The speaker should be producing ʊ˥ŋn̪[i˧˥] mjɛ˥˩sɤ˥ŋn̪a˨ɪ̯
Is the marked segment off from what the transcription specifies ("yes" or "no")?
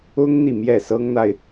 yes